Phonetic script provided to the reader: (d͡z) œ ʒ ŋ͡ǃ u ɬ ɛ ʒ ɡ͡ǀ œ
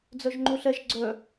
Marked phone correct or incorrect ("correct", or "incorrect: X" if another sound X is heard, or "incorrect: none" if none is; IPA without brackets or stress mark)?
correct